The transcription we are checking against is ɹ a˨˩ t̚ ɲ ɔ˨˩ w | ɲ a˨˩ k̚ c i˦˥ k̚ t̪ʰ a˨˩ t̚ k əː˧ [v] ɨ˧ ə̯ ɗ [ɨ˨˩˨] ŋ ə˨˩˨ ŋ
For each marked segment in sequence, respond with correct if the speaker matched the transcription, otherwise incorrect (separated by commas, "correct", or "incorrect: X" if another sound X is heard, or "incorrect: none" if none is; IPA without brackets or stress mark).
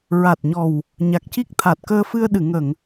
incorrect: f, correct